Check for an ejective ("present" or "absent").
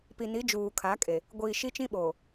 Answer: present